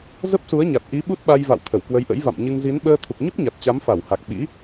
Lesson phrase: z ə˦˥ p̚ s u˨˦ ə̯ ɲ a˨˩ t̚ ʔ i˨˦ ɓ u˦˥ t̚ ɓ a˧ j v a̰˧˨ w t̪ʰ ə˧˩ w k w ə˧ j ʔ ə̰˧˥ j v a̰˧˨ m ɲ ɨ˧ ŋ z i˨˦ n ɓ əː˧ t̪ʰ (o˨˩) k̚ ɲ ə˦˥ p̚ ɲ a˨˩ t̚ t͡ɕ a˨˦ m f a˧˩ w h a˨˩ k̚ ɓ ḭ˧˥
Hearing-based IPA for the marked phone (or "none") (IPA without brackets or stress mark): u˨˩